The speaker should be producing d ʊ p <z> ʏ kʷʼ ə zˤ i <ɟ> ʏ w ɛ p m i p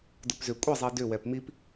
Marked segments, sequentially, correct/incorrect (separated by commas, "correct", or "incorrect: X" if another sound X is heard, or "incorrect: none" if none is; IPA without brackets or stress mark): correct, incorrect: d